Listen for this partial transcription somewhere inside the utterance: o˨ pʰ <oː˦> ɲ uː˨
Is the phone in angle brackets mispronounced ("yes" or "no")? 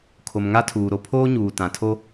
no